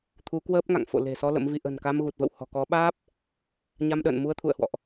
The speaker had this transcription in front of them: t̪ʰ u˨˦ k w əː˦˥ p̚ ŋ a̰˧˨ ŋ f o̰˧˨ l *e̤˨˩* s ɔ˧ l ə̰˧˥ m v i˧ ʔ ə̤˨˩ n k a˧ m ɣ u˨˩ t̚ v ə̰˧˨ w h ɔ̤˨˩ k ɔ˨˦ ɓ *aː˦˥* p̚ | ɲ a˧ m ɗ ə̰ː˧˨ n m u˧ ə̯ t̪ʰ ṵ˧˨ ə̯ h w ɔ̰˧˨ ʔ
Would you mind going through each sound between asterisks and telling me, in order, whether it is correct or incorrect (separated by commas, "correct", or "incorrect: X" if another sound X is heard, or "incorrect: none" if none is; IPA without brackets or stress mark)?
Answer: correct, correct